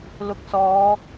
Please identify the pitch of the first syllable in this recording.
low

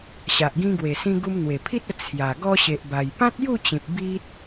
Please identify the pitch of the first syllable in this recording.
low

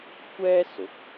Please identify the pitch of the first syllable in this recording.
high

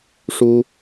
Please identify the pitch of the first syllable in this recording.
high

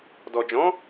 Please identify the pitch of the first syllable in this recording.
low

